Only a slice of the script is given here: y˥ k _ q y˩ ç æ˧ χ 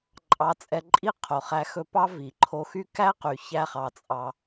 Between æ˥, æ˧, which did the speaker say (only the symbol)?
æ˥